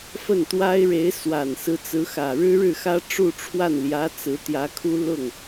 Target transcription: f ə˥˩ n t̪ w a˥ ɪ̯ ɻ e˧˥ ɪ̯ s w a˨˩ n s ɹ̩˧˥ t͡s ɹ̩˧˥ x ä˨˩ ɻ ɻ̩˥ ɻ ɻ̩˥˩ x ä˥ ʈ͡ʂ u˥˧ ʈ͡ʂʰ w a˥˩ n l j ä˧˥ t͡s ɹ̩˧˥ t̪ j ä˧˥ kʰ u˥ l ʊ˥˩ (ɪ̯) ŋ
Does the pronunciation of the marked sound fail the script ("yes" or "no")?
yes